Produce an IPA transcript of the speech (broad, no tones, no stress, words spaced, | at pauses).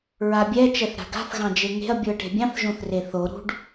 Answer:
ɹabʲɛ t͡ʃɛθɾa̤ɡa̤θ ɣɑ̃d͡ʒeŋe̤ɐ̯ bʲuɐ̯ʈe̤bʲɑ̃θ ʒõθreθo ɾṳɖ